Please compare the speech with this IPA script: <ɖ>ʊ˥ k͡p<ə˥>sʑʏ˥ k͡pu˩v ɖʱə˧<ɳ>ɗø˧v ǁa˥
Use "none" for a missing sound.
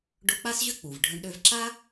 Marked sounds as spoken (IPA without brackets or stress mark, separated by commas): ɖ, a˥, ɳ